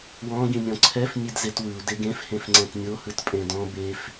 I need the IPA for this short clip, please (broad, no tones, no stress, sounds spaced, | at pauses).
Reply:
w ɔ̃ ɡ ĩ nʲ ɔ̃ ǀʰ ɛ f nʲ e d z e t w ɯ u̯ d e ɡ ẽ f h ẽ f ŋ͡ǀ ɛ̃ t nʲ o h ɯ t pʼ ẽ d ɔ̃ b e f